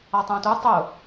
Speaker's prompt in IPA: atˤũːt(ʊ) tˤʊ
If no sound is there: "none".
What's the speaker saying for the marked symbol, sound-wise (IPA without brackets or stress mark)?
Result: u